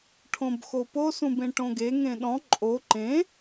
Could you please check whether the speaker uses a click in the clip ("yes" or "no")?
yes